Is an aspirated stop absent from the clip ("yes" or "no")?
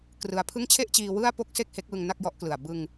no